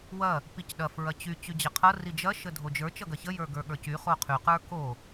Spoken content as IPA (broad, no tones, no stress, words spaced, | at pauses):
wɐ | picɗɐ fɹɐt͡ɕy t͡ɕyd͡ʑɐqʰʌ rid͡ʒɐ ʃədʱod͡ʒə˞ t͡ʃʌɡɐçə jə˞ɡə˞ɠə˞cy χoqʰy qə˞ko